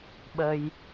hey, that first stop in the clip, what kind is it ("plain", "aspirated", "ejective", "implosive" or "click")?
implosive